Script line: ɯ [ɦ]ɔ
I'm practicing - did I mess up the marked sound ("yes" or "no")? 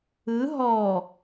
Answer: no